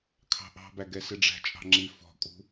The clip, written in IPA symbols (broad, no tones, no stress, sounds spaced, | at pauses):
kʰ ɑ̤ ʔ ɑ̤ b æ ɡ ɛ s ɪ ɖ͡ʐ æ̤ t͡ʃʼ ɑ̤ ŋ͡ǁ i f ɔ̤ kʼ ṳ